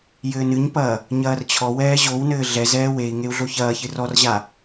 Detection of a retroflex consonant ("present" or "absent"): absent